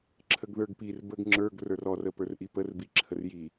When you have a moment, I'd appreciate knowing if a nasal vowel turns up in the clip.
no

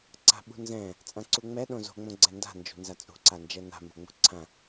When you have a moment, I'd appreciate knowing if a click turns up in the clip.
yes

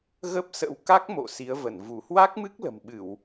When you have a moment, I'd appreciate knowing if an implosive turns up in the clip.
yes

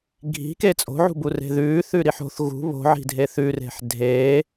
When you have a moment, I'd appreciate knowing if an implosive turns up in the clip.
no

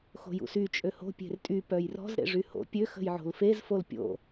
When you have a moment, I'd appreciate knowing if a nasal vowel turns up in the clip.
no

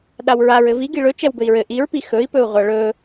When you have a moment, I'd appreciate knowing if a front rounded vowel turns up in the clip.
no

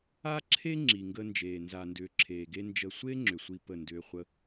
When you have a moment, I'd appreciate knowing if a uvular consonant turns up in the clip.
yes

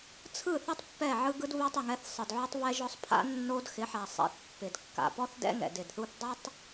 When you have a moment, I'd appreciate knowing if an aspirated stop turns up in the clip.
yes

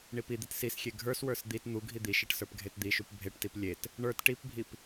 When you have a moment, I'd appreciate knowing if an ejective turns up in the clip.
no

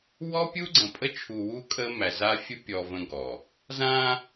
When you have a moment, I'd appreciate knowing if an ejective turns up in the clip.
yes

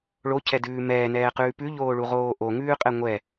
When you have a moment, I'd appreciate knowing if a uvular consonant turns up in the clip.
yes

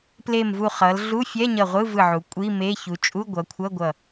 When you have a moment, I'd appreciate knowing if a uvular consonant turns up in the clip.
yes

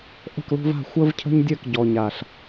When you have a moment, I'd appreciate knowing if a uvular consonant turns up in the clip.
no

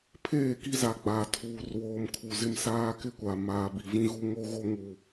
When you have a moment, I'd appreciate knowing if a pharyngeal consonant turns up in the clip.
no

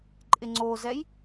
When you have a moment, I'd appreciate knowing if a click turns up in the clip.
yes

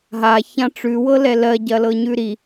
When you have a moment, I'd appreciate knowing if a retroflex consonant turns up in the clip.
yes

